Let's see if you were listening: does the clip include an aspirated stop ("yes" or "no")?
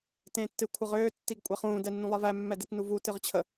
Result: yes